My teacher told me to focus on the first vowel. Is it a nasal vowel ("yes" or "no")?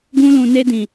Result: yes